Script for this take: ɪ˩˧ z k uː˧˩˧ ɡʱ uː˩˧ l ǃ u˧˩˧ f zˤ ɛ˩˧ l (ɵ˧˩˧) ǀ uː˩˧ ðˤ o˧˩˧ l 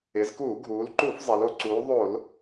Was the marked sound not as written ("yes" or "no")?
yes